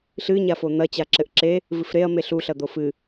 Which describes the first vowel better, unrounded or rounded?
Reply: unrounded